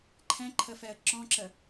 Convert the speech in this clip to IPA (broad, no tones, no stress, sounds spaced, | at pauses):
ǃʰ ɛ̃ ǃʰ ə f ɛ ə̯ ǁ ɔ̃ ǁ ə